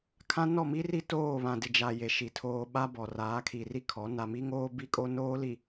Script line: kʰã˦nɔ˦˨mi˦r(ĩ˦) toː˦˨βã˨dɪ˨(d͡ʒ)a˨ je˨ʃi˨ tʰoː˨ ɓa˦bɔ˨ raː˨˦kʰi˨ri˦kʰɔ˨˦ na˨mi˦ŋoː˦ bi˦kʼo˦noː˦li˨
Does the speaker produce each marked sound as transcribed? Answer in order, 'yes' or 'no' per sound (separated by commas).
no, yes